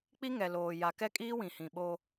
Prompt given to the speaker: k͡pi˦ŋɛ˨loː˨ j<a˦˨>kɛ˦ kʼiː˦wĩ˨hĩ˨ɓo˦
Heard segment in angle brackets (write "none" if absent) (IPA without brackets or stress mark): a˨